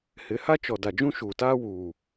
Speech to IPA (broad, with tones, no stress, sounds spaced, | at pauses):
h ɪ˨˦ h a˦ t͡ʃ ɔ˨ d a˨ d͡ʒ ũ˦ ʃ uː˨ t aː˦ w uː˨